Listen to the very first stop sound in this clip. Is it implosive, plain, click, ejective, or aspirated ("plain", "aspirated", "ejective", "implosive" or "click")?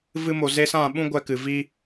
implosive